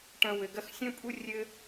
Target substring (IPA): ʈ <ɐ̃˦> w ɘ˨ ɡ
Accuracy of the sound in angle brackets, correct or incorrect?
correct